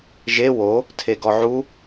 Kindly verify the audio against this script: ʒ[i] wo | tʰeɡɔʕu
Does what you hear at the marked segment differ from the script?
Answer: yes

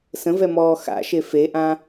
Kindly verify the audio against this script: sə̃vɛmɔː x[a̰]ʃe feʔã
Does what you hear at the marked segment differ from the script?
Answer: no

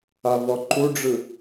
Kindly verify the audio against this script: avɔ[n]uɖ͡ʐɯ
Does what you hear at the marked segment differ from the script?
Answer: yes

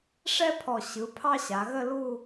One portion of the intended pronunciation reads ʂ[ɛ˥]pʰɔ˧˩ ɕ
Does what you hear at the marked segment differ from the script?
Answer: no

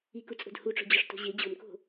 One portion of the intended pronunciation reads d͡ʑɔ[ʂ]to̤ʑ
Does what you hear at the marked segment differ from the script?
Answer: no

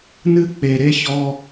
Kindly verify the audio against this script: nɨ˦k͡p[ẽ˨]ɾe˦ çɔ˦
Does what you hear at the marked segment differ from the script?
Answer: yes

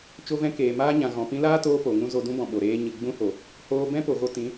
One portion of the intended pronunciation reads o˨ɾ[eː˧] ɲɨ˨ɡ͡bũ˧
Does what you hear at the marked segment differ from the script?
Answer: no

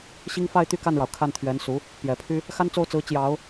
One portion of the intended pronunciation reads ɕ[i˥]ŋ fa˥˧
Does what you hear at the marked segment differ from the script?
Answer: no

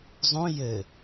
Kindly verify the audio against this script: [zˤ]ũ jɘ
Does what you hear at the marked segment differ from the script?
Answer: no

